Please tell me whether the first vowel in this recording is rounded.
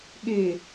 no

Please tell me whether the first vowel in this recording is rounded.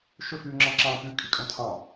yes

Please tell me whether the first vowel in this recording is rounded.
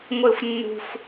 no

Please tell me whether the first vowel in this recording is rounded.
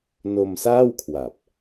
yes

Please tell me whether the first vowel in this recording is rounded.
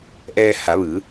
no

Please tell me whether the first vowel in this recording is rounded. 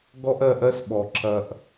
yes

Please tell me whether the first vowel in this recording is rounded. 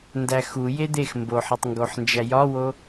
no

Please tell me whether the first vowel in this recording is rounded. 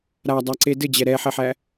no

